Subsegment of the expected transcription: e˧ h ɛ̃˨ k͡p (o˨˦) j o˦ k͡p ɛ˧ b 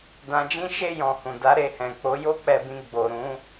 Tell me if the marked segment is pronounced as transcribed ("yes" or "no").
yes